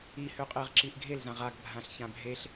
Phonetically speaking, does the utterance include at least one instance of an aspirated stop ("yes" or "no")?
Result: no